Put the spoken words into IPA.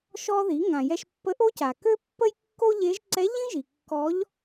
ʃ ɔ˧ ð i˩˧ ŋ ã˩ j ɛ˧ ʃ pː ə˧˥ ʔ o˥ c a˩ k ø˥ pː ə˥ j kː o˥ ʎ e˧˥ ʒ ǀ ɛ˧˥ ʎ ĩ˥ ʒ i˩ kː ɔ˧˥ ʎ

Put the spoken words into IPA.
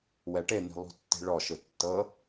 w ɛ ʈ e n̪ i̤ lˠ ṳ tː i̤ ɭ ɔ ʃ ɯ tː ɤ

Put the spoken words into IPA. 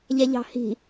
ʎ ɛ ʎ ɑ̤ h i̤

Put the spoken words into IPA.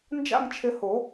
n d͡ʒ a̰˥˧ ŋ t͡ʃʰ ɪ˧ h o˨˩˦

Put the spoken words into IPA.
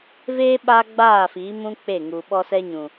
v eː˦ ɓ aː˦ ɡ͡b aː˦˨ f iː˨˦ m ũ˦ k͡p e˦˨ ŋ u˨ ɓ ɔ˦ s ɛ˦ ɲ ũ˨

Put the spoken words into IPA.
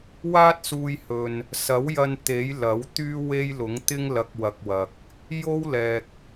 w aː˥ t̚ s uː˧ j h ɵ˨ n | s ɐ˨˥ w j ɐ˧ n t̪ e˨˥ j l ɐ˨˥ w t̪ yː˥ w e˥ j l ʊ˨˥ ŋ t̪ ɪ˥ ŋ l ɐ˧ k̚ w ɐ˨ k̚ w ɐ˨ k̚ | j o˥ w l ɛː˨ k̚

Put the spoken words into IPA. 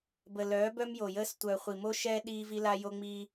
b ə˨ l œː˨˦ b œ˦ m j o˨ j əː˦ s tʷ œː˨ χʷ i˨ m o˦ ʃ ɛː˦ ɗ iː˦ v i˦ l a˦ j o˦ ŋ͡m iː˦

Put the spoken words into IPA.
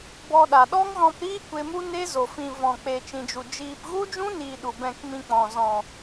b ɔ˧ ɗ a˨ ɗ ɔ˦ ŋ ɣ ɔ̃˧ p ɾ iː˦ kʷ e˧ m u˦ n e˦ z o˨ f ĩ˨ v ɔ̃˨ k͡p e˨ t͡ʃ ĩ˨ d͡ʒ u˨ d͡ʒ iː˧ p ɣ u˦ d͡ʒ ũ˦ n iː˨ ɗ u˨ b ɛ̃˧ k m ĩ˧ k͡p ɔ̃˨ z ɔ̃˨

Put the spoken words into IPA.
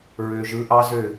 ɹ ø˨ ʒ ɯ˨˦ ʔ ɑ˦ z ø˦˨

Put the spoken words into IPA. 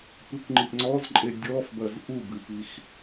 p ɨ kʷ ŋ͡ǃ i ʔ ŋ͡ǀ ɔ z ǃʼ e dʲ ɔ f b ɐ z ʔ u b ɨ p i x

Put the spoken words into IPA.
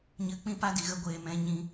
ɲ ɨ˨˦ k͡p ĩ˦ p a˦ d i˨ ɣ ə˧ ɡʷ eː˨ m ɛ̃˧ ɲ ĩ˧

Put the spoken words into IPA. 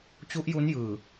t͡ɕ u˦˥ ʔ j u˦˥ n j ɯː˨˩

